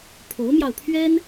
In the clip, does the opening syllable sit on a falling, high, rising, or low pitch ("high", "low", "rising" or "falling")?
rising